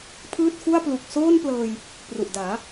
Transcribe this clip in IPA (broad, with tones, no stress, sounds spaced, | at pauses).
pʰ ɯː˥˩ t̚ f u˥˩ a̯ p l u˨˩ k̚ s oː˥˩ n p l ɤː˧ j | p r u˨˩ ʔ d aː˩˦